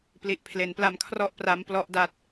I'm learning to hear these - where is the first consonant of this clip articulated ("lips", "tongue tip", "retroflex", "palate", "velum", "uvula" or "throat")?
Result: lips